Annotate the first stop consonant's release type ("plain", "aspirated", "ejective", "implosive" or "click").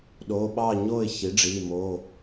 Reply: implosive